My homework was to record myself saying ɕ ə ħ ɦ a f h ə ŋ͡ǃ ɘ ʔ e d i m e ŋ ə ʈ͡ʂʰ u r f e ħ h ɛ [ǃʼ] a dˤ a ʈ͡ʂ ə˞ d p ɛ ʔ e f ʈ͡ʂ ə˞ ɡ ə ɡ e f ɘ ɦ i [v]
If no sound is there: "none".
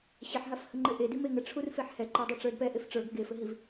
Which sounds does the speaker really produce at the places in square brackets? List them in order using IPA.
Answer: ǃ, v

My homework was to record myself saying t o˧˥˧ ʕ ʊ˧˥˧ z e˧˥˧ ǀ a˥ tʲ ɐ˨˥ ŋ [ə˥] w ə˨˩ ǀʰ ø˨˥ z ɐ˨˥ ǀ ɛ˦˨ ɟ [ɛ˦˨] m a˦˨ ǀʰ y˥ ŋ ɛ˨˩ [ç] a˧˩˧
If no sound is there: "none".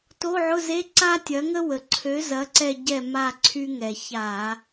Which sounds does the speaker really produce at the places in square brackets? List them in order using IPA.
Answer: ə˥, ɛ˦˨, ç

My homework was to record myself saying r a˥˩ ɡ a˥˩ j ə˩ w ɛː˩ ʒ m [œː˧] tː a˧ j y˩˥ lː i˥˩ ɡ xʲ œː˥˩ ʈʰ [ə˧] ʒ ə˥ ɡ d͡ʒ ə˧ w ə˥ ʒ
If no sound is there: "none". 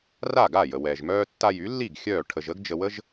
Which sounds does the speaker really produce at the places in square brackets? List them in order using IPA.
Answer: œː˧, ə˧

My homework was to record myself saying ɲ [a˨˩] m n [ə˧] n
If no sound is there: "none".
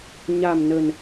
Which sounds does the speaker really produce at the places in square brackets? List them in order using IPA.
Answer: a˨˩, ə˨˩

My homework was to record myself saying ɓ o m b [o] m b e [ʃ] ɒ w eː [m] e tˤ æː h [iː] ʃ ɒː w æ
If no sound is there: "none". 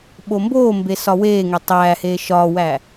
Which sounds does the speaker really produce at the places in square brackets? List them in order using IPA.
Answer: oː, s, ŋ, eː

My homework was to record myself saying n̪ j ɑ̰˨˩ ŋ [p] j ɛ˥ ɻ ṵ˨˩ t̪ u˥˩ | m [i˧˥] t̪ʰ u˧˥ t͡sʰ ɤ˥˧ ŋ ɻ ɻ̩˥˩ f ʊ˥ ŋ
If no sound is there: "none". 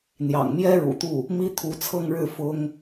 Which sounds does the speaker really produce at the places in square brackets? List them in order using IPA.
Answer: m, i˥

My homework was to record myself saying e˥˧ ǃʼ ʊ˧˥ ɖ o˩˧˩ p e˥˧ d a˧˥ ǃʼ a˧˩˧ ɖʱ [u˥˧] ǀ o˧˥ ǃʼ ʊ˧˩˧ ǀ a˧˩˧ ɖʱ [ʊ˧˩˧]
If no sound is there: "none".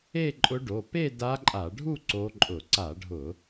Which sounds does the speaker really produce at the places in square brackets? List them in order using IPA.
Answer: u˥˧, ʊ˧˩˧

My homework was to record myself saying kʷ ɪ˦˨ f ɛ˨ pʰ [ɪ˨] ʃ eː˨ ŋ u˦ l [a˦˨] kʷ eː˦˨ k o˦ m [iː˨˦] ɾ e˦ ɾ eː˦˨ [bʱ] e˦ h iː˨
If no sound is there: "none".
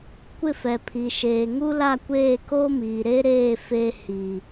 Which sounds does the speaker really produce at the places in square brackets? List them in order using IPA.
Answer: i˨, a˦˨, iː˨, f

